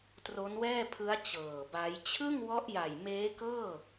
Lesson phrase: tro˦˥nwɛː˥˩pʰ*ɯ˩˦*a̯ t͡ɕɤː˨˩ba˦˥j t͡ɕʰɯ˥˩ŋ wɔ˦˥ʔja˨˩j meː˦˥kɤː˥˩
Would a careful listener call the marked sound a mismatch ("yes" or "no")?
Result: yes